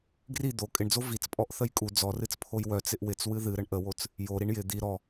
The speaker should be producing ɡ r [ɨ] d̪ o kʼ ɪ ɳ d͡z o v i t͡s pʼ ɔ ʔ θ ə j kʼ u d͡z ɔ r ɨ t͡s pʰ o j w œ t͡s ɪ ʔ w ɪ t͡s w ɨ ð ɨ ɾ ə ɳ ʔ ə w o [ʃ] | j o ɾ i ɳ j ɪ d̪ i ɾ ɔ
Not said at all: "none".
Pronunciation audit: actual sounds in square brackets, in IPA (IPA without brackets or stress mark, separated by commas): i, t͡s